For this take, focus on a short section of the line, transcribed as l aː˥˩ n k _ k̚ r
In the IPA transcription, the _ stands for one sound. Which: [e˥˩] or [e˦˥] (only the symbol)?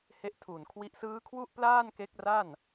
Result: e˦˥